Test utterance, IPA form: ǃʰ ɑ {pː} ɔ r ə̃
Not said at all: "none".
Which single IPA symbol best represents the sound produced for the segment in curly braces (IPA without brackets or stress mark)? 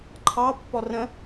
pː